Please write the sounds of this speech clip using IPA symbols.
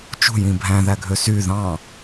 t͡ʃ ṳ j ĩ bʱ æ̃ ð æ ɡʱ ø s y ð ɑ̃

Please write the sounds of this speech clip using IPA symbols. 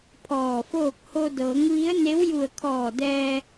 pʰ ɔː˧˩ f oː˥˨ k̚ h o˧ d ɤː˩˧ ŋ ʋ i˧˥ ə̯ n e˧˥ w j u˧˩ ə̯ kʰ ɔː˧˩ d ɛː˧

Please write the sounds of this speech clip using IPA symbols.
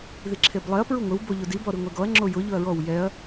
ð i ǁʰ e b lˠ ɛ ɐ̯ p ɹ u ŋʷ ɪ w b o ʎ ʊ d i b ɔ ɾ i ŋʷ e ɡ ɔ ɐ̯ ŋ͡ǁ o j ʊ ʎ ʊ ɐ̯ ɹ ɔ w j ɛ ɐ̯

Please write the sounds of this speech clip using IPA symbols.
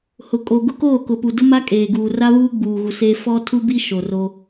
h ʊ˨ kʼ o˨ ɡ ʊ˦ k oː˦˨ k ʊ˨ p u˨ d ʊ˦ m a˦ kʼ eː˨ ɡ uː˨ r a˦ β uː˦ ɡ͡b uː˨ ɣ u˨ s eː˦ f ɔ˦ tʰ u˦ b i˦ ʃ o˨ r o˦

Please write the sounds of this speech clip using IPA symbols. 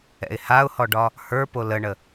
ɛ̰ ɪ̯ h a ʊ̯ h ɔ ɖ ɒ | h ə˞ p o l ə ɳ ə

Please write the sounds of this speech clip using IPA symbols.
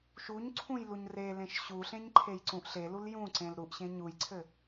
ʃ u ɲ ǀʰ ũ j l u ɲ r e l ẽ ʃ ɕ u ɬ ẽ ɲ ǃʰ e j ǀ ũ ʔ ɬ e l u l j ũ ǀ ẽ l ɾ u ʔ ɕ ẽ ɲ u j ǀʰ ɘ

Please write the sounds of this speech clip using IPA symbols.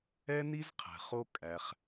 ɛ˦ n i˦ z qʰ ɛ̤˨ χ o˦ kʼ æ˧ χ

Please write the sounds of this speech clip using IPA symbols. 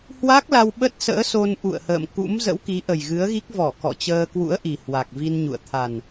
h w a˦˥ k̚ l a˧ w ɓ ə˦˥ t̚ s ə̰ː˧˥ s o˧ n ʔ ṵ˧˨ ə̯ h ə̰ː˧˨ m k ṵ˧˥ m z ə̰˧˥ w k i˨˦ ʔ ə˨˩ j ɣ ɨ˨˦ ə̯ ɣ i˦˥ k̚ v ɔ˧˩ k ɔ̰˧˨ t͡ɕ əː˧ k w ṵ˧˥ ə̯ ʔ i˨˩ h w a˨˩ k̚ v i˧ n ɲ ṵ˧˨ ə̯ t̪ʰ a˨˩ n

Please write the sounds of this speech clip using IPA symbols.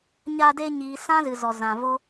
ɲ a˧ d eː˧ ɲ iː˨ s ã˦ z ɨ˨ z ɔ˨ z ã˨ v o˦

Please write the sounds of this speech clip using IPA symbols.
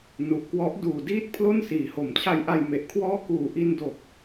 n u˨˩ ʔ k w ɔ˦˥ ʔ d uː˨˩ d iː˥˩ t̚ pʰ l o˥˩ n s iː˩˦ h o˩˦ m t͡ɕʰ a˧ j ʔ a˧ j m e˨˩ ʔ kʰ w ɔː˥˩ k uː˨˩ ʔ i˧ n d o˨˩ k̚

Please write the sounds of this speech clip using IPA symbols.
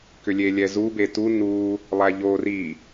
k ʏ lʲ e lʲ ɛ z u b e t u n u | lˠ æ ʎ o r i

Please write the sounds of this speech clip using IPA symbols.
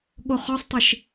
ɠ o χ ɔ sˤ tˤ i ʃ

